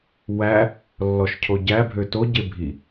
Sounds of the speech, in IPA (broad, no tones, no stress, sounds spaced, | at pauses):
w æ | lː ɔ ʃ cʰ o ɟ æ bʱ ø t o ɟ e bʱ i